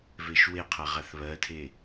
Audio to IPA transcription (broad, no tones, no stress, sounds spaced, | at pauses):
v e ʃ w e qʰ a ʁ a θ β ɜ tʰ e